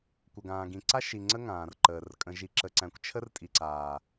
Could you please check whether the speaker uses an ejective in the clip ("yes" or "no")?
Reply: yes